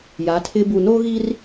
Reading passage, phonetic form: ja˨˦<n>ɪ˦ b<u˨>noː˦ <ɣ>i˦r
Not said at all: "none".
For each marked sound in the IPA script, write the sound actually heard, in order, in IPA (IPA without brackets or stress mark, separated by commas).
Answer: tʰ, u˨, ɣ